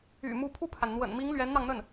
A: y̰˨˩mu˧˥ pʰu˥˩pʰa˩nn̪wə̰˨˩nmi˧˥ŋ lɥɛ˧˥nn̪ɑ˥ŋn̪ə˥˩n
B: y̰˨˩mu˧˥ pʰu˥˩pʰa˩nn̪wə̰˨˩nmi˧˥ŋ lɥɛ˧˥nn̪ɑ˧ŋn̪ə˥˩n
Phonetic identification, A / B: B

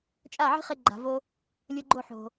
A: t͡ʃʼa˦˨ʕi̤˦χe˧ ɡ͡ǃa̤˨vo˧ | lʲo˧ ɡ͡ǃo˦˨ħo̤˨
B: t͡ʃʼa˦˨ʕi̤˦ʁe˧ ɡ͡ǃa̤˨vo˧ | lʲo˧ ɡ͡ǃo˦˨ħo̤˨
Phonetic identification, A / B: A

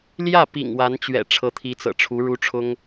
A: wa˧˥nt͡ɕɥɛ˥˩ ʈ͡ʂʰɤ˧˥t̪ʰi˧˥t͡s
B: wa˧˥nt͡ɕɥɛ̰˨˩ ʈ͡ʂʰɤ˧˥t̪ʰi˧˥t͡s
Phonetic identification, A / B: B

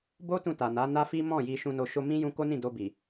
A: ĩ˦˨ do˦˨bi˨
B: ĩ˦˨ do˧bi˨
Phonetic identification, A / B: B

